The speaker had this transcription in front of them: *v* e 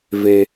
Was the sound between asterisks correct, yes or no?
yes